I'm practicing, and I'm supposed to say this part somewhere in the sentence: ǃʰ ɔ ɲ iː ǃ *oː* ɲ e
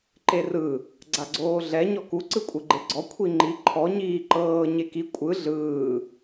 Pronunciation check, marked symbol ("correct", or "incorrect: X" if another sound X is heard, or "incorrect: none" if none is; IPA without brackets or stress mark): incorrect: ɤː